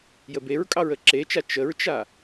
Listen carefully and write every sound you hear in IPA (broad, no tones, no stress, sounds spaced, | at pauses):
j ə b e ɹ kʼ ɑ ɹ ə ǁ e t͡ʃ a t͡ʃ ə ɹ t͡ʃ a